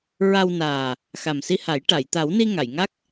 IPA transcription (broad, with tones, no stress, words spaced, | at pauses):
ɹa˧wnaː˨˩ | xa˨˩msi˧ha˨˩˦j ʈa˨˩˨jt̪a˨˩˦wni˧ ŋa˨˩˨jŋa˦˥k̚